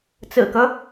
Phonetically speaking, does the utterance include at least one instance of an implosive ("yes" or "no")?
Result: no